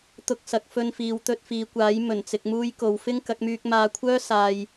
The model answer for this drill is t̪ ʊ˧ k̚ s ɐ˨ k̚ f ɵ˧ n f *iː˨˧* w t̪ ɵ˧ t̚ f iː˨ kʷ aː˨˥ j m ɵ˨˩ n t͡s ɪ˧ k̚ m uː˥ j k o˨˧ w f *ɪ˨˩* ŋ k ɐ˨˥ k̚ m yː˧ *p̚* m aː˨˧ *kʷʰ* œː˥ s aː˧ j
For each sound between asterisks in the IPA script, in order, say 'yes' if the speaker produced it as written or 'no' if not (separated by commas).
yes, no, no, yes